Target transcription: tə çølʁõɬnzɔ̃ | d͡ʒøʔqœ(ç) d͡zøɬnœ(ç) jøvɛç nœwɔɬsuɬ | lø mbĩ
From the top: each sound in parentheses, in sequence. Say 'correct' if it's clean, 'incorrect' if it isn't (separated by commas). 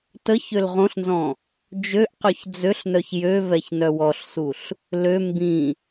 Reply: correct, correct